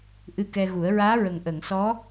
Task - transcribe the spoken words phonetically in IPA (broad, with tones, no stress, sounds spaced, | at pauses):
ʔ ɨ˧ k ɛ˧ ɣ u˨˩˦ ə̯ ɹ aː˧˥ ɹ ə˨˩ ŋ ʔ ə˨˩˨ ŋ s ɔ˧˥